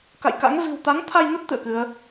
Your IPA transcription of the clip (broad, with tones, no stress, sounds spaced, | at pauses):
k a̰˧˨ j k a̰˧˥ ŋ v i̤˨˩ w t̪ a˨˦ ŋ t̪ʰ a˧ j n ə˦˥ t̚ t̪ ɨ̰˧˨ ə̯ k ɨ˨˦ ə̯